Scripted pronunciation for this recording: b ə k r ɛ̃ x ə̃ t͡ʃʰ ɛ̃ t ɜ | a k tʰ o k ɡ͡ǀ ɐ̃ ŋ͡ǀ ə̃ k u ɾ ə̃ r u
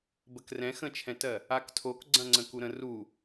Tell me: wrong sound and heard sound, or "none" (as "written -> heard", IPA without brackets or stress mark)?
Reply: none